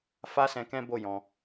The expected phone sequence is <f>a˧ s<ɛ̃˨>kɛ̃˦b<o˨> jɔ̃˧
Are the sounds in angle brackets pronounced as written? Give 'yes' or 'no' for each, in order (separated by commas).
yes, no, no